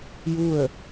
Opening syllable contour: falling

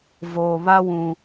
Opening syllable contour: low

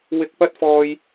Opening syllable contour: low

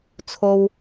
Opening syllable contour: high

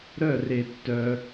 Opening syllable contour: falling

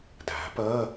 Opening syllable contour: rising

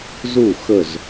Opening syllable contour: falling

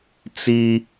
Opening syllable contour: high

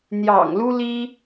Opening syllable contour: low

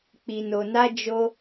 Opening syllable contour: low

